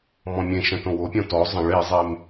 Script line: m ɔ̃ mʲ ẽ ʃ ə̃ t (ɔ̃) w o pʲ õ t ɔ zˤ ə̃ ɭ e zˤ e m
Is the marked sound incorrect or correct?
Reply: incorrect